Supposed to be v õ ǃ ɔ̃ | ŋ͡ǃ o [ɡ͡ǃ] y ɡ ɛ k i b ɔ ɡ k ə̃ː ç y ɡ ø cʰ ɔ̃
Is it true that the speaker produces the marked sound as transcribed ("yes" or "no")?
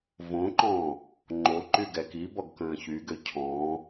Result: no